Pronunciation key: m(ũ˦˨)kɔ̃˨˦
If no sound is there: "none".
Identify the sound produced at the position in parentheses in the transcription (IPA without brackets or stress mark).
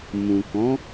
ũ˨